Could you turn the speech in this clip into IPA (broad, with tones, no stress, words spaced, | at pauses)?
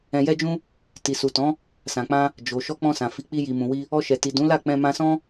ɛ̃˧jɛ˦d͡ʒũ˦ | ti˨su˨tɔ̃˨˦ | sã˨k͡pã˧ | d͡ʒo˨ ʃɔ˧k͡pɔ̃˧sã˨ fi˨˦k͡pi˧ ji˨mũ˨wi˧ | ɔ˧ʃɛ˨ti˨ dũ˨˦la˦˨k͡pɛ̃˧ mã˧sɔ̃˦